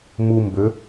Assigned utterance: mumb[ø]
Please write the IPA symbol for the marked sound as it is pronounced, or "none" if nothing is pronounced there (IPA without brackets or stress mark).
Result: ø